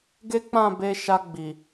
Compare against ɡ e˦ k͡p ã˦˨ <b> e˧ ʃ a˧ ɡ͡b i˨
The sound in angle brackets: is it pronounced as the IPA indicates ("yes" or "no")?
yes